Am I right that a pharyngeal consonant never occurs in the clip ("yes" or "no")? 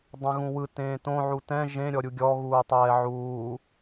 no